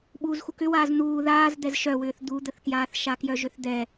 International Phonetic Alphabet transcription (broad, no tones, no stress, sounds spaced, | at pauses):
ɓ uː z x u k ʏ w aː z n̪ uː ð aː z d̪ ɛ z ʃ œ w ʏː θ d̪ u d̪ ə θ k j aː θ ʃ a k j œ ʒ ʏ θ d̪ ɛ